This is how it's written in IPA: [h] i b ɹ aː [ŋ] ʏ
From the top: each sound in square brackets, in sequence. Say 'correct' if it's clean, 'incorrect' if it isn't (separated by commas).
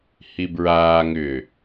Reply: correct, correct